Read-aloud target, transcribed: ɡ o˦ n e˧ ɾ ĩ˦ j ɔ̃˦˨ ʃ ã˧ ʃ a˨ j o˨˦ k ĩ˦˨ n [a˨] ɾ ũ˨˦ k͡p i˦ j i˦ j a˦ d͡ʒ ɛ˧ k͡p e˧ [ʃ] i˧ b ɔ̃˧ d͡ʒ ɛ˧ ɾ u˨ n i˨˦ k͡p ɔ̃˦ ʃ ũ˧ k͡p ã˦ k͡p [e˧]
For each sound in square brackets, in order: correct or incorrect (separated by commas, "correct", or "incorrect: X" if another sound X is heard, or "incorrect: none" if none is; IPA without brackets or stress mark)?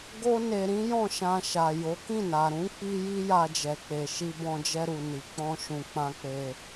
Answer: correct, correct, correct